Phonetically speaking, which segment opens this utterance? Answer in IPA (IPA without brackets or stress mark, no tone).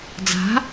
d͡z